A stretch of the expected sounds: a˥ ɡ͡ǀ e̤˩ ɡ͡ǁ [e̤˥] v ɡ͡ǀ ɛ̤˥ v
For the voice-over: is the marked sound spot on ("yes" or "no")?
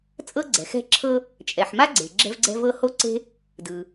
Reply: no